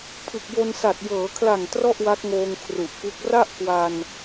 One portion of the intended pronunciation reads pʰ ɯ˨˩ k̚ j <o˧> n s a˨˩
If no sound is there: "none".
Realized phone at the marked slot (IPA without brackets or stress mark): o˧